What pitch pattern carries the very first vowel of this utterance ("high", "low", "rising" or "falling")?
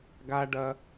high